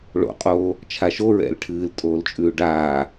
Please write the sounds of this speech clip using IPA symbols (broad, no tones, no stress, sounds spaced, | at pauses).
ɭ o̰ qʼ oː | t͡ʃʰ a ʃ o ɹ ɛ̰ l ʈʰ ɨː l tʼ oː l t͡ʃʼ ʉː ɖ aː